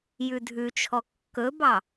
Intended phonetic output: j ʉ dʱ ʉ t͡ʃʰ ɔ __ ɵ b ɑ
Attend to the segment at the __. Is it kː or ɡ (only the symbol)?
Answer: kː